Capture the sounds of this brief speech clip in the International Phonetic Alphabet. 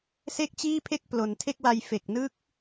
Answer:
s e˥˩ k̚ t͡ɕ iː˥˩ pʰ e˥˩ k̚ p l o˩˦ n tʰ e˥˩ k̚ w a˧ j f e˨˩ k̚ n ɯ˦˥ k̚

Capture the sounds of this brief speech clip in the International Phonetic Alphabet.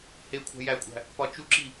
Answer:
h e kʷʰ æ̤ j æ kʷʼ æ̤ | p ɒ t͡ʃ u ǁ i

